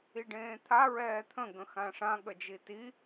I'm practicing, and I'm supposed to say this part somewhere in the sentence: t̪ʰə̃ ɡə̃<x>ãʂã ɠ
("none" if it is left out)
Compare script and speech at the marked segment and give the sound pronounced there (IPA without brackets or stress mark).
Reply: x